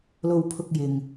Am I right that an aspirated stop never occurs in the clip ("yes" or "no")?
no